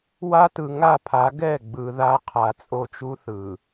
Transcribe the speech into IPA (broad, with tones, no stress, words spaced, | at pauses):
wa˦tɯ˨ ŋa˦˨pʰa˨˦ ɡɛ˦˨ ɡ͡bɯ˨ða˦qʰa˨ t͡sʼo˦t͡ʃu˦θɯ˨